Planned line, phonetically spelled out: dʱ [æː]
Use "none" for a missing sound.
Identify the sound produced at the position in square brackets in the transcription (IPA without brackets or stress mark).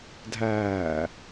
æː